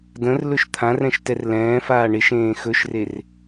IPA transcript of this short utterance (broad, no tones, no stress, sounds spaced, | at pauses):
d ə̃ r l ɵ ʃ t̪ʰ ã r ɛ̃ ʃ t ɛ r l ɛ̃ː f aː ɳ ɪ ʃ ẽː x ɵ ʃ r e r